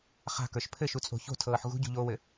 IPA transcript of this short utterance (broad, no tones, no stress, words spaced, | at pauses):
χa̤kə˞ʃ pʰɘʃut͡sʼo̤ ço̤tʰɤːħ ɣṳɟṳʎoːwɘ